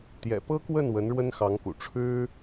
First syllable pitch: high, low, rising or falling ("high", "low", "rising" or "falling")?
low